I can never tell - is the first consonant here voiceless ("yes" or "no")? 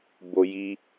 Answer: no